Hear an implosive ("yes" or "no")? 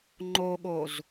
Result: yes